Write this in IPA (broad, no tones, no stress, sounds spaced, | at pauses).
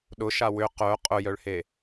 ɗ ʊ ʃ a w ʏ q œ qʼ ʊ j œ ɭ h e